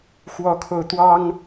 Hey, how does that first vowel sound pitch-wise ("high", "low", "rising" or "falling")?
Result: rising